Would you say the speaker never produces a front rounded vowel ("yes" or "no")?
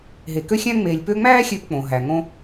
no